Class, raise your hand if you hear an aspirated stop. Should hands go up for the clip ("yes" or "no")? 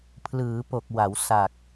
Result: yes